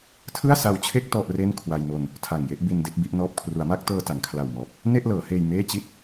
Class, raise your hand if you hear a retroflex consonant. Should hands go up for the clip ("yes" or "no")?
no